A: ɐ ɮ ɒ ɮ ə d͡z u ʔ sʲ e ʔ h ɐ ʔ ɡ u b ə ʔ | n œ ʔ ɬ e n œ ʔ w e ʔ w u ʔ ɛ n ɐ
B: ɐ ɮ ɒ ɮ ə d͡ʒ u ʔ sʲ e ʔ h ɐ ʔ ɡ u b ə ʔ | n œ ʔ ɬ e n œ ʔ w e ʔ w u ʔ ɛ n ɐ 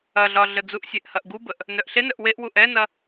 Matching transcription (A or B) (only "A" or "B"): A